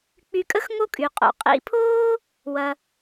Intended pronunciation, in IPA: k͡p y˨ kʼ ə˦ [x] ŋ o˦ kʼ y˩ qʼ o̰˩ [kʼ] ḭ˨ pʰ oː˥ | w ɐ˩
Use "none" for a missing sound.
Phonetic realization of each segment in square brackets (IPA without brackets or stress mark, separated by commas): x, qʼ